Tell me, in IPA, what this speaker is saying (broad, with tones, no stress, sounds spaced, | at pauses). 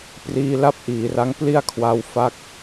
p r iː˧ l a˥˩ p̚ ʔ iː˩˦ r a˦˥ ŋ p l i˥˩ a̯ kʰ w a˦˥ w f a˥˩ k̚